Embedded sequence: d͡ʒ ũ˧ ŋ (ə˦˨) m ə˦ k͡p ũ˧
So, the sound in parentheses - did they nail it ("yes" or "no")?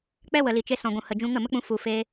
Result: yes